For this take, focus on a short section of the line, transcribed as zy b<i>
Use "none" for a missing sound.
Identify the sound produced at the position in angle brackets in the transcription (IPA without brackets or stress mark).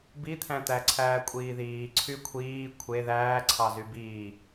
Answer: iː